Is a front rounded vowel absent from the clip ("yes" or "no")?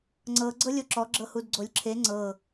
yes